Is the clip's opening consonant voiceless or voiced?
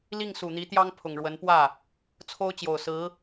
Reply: voiced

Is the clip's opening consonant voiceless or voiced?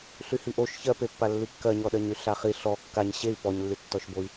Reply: voiceless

